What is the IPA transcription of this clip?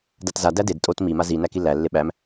datza dæded tʼot mi mazi nækilːæ lːeɓæm

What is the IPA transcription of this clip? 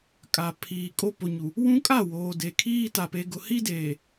kʼa˨ pʰiː˨kʼo˦ po˨ɲu˨ | wũ˦kʼa˦˨ woː˨de˨ kʰiː˦ta˨ pe˨ɡʊ˨hi˦deː˨

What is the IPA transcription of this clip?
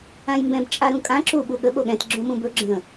ãjmbɛ̃b t͡ʃʼaɾũkʼã ǁu ɓuɠə ɓoɠɛ̃t ɡ͡ǁõmũbɵ ɡ͡ǁə̃

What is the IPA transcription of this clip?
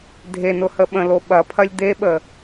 dʱenʊhə ɓə̃lo ɓɐpʰɐlʲ d̪eɓə

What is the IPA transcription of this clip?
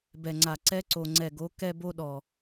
bɛ˨ŋ͡ǀa˨ ǀɛ˦ǀo˨ŋ͡ǀɛ˨ɡo˨˦ kɛ˦bo˦ɗɔ˨

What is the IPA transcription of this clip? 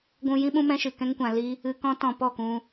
ɡʷũ˧ jĩ˦ɓũ˦mɛ̃˦ʃɨ˨ kɛ̃˦ŋkʷã˧li˦ | ɨ˧ kɔ̃˦tɔ̃˧ pɔ˦˨kũ˧

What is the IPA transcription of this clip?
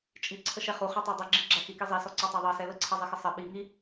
t͡ʃʼi ǀʰəʃɛχu χɛtˤædˤiɡ͡ǁɪ ɡ͡ǁæxiki zˤisɔ ǀɔtˤæðˤɑsɛ ləǀʰɛzˤixə sˤɪ ɓi ŋi

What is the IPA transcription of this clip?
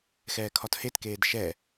xɛːkʰɒthetkeːd ʃɛ

